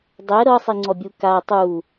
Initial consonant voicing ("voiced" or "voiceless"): voiced